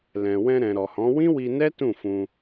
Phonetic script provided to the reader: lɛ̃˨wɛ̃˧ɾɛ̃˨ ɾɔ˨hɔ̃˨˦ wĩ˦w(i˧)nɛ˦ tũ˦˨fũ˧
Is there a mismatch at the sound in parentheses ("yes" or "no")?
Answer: no